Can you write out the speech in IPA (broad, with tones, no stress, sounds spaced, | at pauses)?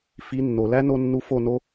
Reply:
f i˨˦ nː o˨ l æ˦ n o˧ nː u˧ f o˦˨ n o˦